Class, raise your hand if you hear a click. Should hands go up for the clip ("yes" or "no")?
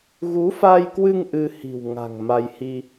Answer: no